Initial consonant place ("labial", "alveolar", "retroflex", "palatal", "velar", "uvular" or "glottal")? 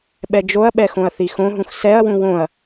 labial